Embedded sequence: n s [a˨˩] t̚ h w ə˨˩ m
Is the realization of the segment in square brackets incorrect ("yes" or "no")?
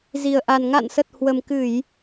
yes